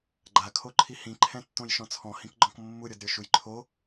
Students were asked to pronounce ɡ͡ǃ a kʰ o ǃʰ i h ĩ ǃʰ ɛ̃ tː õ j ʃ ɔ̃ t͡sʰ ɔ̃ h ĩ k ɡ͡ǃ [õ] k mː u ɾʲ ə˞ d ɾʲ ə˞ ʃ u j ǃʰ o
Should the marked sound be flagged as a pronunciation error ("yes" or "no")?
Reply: yes